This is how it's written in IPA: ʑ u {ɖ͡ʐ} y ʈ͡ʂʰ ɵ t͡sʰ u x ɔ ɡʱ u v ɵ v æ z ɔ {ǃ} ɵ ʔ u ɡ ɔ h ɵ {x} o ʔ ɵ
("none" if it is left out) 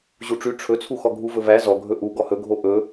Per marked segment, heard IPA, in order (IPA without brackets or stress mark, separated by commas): ʈ͡ʂ, ɡʱ, ɡʱ